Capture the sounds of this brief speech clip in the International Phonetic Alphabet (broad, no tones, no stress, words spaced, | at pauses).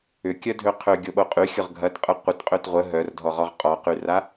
ʏkʲœdʱø qʰøɡʲoɓo qʼyxʲʊʁ ɡʱɐtqʼə qʷətqʼøt ʁʷə ɦœrdʱɔʁɔʁ qʼɔqyra